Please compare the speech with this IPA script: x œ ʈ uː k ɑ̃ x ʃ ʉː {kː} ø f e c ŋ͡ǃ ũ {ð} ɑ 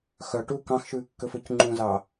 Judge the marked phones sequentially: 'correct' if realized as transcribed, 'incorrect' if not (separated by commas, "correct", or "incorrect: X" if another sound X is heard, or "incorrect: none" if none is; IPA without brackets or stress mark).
correct, incorrect: z